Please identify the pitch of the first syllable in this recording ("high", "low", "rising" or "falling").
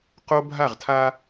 high